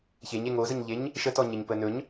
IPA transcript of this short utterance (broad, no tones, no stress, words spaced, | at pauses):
çeɲe ŋozəɲʎeɲ | ʃətɔɲeɲpə nɵɲ